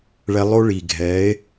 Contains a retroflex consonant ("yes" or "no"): yes